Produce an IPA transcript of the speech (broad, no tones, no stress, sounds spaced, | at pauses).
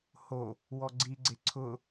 h o | w ɔ ɡ͡ǀ i ɡ͡ǀ e ǀʰ ʊ